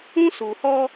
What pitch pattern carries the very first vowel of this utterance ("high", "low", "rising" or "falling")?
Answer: high